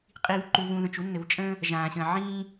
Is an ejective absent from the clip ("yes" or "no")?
no